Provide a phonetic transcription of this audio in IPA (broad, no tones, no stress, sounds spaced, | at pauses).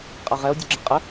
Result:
qʼ a ʁ ɛ o̯ dʲ u ɡ͡ǁ ɛ qʼ ə